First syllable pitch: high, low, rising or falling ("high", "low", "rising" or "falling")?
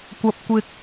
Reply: low